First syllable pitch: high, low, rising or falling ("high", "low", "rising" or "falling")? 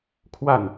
falling